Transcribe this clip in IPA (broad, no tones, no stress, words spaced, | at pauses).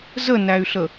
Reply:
zənæy̯ɬə